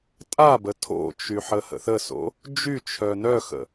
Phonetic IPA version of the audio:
tʼ a b ə tʰ o̰ t͡ʃ y ħ ə h ə̰ θ ə s o̰ | d͡ʒ y t͡ʃʰ œ n œ x ə̰

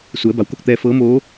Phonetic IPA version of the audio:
s u˩˧ ə̯ b a˩˧ w k o˥˨ k̚ t̪ ɛː˧ f ɤː˧˥ m oː˧˥

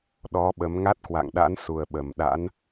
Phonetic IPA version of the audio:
ɗ ɔ˨˦ ɓ ə˨˦ m ŋ a˦˥ t̚ k w a̰˧˨ ŋ ɗ a̰˧˥ n s u˨˩ ə̯ ɓ ə˨˩ m ɗ a̰˧˥ n

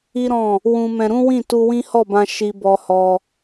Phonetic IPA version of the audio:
i˦ ɾ ɔ̃˦˨ | w ũ˧ m ɛ̃˧ ɾ ũ˦ w ĩ˦˨ t u˧ w ĩ˦ h ɔ˦˨ b ã˧ ʃ i˧ b ɔ˧ h ɔ˧

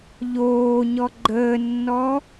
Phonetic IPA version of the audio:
ʎ oː ɲ ɔ ɡ͡ǃ əː nː ɔ

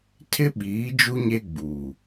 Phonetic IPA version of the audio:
tʰ ɪ˦ ɓ iː˨˦ d͡ʒ u˦ ɲ e˦ ɡ͡b uː˨

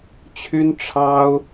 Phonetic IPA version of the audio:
t͡ɕʰ y˥ n ʈ͡ʂʰ ɑ˥ ʊ̯

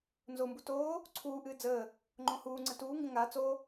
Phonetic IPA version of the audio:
n z o m b u t oː | ǀʰ uː ʔ ɨː d͡z əː | ŋ͡ǃ õ h uː ŋ͡ǀ ə t uː ŋ ɡ ə̃ ŋ a t͡s o

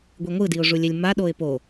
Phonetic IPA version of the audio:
ɡʷ i ŋʷ ɯ d i ʊ̯ ʐ u lʲ ɛ lʲ m a ɗ o ɪ̯ p o

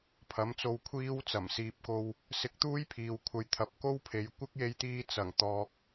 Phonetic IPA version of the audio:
pʰ ɐ˨˥ m t͡s o˧ w kʷʰ iː˥ w t͡s ɐ˨˩ m s iː˨ p̚ k o˧ w | s ɪ˧ k̚ t̪ uː˥ j pʰ iː˨ w kʷʰ ɐ˧ j t̪ʰ ɐ˨˥ p̚ k o˥ w pʰ e˨˧ j kʷ ɪ˥ k̚ j e˧ j t̪ iː˧ t͡s ɐ˨˩ ŋ t̪ ɔː˨ k̚

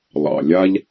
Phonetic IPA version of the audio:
lˠ ɑ̰˨ lʲ a˦ ʎ

